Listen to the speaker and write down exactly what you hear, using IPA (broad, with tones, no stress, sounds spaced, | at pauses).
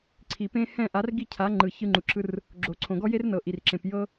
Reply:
ǀʰ i˩ p ẽ˧ h ɛ̃˥˩ ʔ a˩˥ r ɡ i˥˩ cʰ a˩˥ ŋ͡ǃ ɯ˩ ç ɯ˧ ŋ͡ǃ u˩ ǁʰ ɯ˧ r | ɡ͡ǁ o˩ ǀʰ õ˩ ɡ ɔ˥ j e˥ r n ɤ˩ ʔ i˩ r ǁ ẽ˩ p j ɤ˥